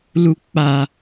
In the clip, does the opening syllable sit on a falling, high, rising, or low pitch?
low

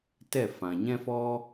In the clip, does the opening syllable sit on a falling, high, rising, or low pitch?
falling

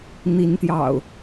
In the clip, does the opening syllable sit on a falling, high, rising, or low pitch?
rising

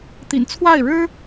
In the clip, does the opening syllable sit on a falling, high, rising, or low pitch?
low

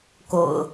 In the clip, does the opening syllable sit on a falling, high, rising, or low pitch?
low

